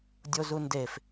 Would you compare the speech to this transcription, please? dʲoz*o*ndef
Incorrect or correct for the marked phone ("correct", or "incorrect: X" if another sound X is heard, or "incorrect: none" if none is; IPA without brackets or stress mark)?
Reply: incorrect: u